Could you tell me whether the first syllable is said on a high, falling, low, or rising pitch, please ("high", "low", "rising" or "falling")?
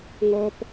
high